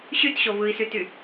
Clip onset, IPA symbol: ɕ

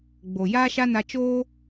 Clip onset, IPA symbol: ɡ͡b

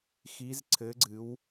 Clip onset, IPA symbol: x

